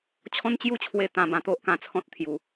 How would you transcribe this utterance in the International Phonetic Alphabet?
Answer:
t͡ɕʰɔ̃˦nt͡ɕju˥˧t͡ɕʰwe˧ t̪ã˧bã˧ t̪o˦ʔkã˧ t͡sʰɔ̃˦t̚t̪ʰju˨˩

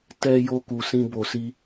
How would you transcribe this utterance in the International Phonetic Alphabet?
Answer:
tɛ˦jo˦ ku˧sĩ˦ bo˧si˦

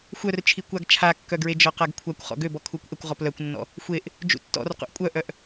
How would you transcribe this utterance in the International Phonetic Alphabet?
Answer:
xʷœrt͡ʃʰikʷaɡ t͡ʃʰakːœɡɹe d͡ʒɔqaɡkʷʰakʷ χɔ̰ɡøbɔ kʰukʷʔəkʷ ʁɔplœkʷnːɔ̰ | xʷeʔ | d͡ʒṵtːɔ̰r qṵʔkʷʼœʔœʔ

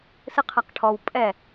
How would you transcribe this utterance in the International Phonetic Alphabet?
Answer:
sɨqʰaqʈʰɔw pʼɛ

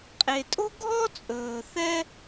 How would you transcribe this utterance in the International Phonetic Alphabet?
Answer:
qʼe˨tʼo̤˥ɡʱɔ˥t͡sʼɵː˨ θɛ˥

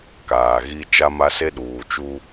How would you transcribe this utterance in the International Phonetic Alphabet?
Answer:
kaː˨ɣi˦ t͡ʃa˦ma˦se˦ ɗuː˨t͡ʃuː˦

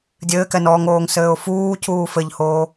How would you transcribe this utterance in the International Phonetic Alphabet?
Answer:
dʲɘːkɛnɔːŋoːŋ sɘːʊ̯fuːcʰuː fɘʎhoː

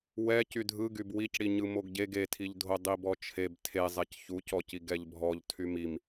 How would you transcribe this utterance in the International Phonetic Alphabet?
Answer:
wɛ cydʱɯɡyb wicɽiɲɯ moɡɟeɡ etʰiʎdʱo dˤibɔt͡ʃʰeb tʰezˤɛc çucɔci ɡɛʎbʱɔʎ tʰymim

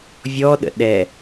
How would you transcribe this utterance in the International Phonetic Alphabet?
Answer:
vʲɔɗə̰ ɗɛ

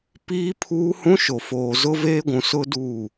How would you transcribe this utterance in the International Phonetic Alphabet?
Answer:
piː˦pʰuː˦hũ˦ ʃo˨foː˨zʊ˦ veː˦ɡʷũ˨sʊ˦ duː˦˨

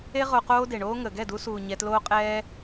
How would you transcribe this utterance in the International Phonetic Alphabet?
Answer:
e˦ ʁo˧qoː˦ de˨ɳoː˦ŋə˨ ɡɛ˦˨du˧suː˨ ɲɛ˧tloː˦qʼɛː˦

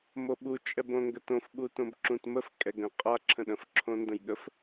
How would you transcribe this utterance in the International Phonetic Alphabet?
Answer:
moɓu t͡ʃʼɛbõŋɡətõf ɓutõbǁũtməf kʼɛɡə̃ qʼa ǁʰə̃ɗə̃f ǁʰõndə̃jɠəf

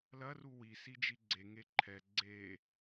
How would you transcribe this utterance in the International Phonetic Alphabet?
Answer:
lɐru wisid͡ʒi ɡ͡ǀeŋe ǃʰɛ ɡ͡ǀe

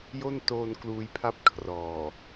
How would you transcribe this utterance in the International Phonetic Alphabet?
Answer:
jo˥˩ntoː˧n kluː˧jpʰa˥˩p̚ kʰrɔː˨˩

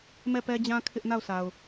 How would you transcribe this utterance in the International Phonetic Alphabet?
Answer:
mɛ˦˨pɛ˦d͡ʑã˦ kʰɪ˦ʔna˦˨ʊ̯sa˨ʊ̯

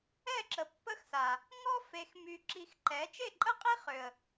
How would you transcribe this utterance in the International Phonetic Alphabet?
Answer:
ɛ˦˨ǁə˨pːə˦xsa˨ | ŋɔ˦ fe˨xmy˨ ǁi˧xǃɛ˨˦ t͡ʃe˦˨ǃʼə˦qʼi˦ χø˨ə̯

